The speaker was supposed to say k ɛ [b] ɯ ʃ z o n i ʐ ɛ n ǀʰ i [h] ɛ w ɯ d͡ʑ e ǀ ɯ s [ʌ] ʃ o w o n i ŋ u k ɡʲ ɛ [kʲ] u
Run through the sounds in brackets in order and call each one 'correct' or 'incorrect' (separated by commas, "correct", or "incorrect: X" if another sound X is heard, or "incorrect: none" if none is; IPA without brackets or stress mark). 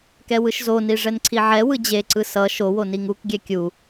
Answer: incorrect: w, incorrect: ʕ, correct, correct